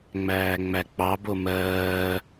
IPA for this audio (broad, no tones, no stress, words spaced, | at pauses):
ŋ͡mæːŋ͡mæk͡pɑbo mɜː